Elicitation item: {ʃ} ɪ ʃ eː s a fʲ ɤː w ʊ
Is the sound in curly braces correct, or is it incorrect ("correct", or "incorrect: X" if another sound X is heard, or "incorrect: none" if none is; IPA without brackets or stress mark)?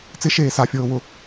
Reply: incorrect: t͡s